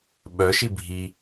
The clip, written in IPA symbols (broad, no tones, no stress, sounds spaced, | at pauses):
ɓ œ ʃ i bʱ i